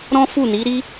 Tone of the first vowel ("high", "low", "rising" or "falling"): high